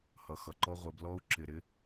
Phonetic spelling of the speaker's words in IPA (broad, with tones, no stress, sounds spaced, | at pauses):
h ʌ˨ x ʌ˨ ǃ ɔ˦ ʁʷ ɪ˨˦ b l ɔ˦ u̯ ǁ ɪ˨ ɾ ɪ˦